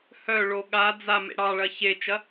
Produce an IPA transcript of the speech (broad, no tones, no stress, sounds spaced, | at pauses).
h œ ɭ o ɠ a d͡z a m ḛ ɽ ɑ ɭ ɐ ç e t͡ʃ ɐ